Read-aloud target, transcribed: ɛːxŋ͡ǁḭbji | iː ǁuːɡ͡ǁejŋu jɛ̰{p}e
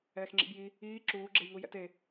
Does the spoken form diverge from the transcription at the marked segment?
yes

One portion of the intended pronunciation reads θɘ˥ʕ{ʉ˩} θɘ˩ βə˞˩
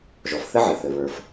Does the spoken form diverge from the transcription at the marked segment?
yes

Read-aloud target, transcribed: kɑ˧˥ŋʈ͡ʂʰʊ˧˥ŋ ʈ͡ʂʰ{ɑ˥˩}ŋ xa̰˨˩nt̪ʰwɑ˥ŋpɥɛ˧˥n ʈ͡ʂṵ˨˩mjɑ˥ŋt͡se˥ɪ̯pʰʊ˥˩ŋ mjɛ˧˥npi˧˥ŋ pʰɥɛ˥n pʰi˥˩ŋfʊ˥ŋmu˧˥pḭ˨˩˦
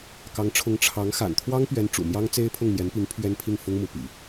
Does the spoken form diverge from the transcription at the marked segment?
yes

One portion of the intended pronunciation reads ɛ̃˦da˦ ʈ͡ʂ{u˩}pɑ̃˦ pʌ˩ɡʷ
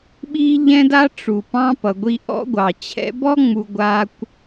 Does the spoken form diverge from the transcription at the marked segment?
no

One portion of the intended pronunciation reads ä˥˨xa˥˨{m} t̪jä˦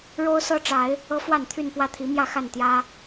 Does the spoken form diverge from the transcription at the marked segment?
yes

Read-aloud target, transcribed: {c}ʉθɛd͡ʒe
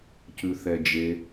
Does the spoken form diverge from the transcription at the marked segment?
no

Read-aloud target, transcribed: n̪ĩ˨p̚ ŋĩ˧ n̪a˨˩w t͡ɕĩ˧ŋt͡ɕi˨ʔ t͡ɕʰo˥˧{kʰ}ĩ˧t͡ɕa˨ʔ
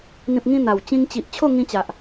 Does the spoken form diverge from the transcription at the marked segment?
yes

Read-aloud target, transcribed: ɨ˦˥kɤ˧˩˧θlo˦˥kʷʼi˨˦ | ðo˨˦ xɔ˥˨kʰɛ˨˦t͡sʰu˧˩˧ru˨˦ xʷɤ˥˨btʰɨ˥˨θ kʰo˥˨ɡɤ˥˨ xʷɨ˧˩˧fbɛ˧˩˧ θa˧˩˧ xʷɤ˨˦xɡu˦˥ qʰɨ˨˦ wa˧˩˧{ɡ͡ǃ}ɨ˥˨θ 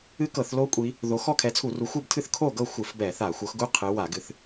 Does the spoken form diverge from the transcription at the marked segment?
yes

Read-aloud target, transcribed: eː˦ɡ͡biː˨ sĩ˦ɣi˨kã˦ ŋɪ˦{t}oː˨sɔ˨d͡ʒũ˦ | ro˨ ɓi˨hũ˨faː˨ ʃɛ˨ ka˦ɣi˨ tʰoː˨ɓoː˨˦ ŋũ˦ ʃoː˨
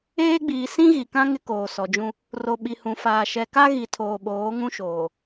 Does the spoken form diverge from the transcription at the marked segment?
yes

